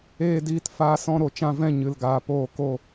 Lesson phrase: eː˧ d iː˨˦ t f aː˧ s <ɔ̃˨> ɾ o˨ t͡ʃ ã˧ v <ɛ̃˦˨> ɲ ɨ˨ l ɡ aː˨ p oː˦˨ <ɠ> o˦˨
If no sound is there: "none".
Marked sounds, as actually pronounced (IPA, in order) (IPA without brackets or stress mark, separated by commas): ɔ̃˧, ɛ̃˦˨, k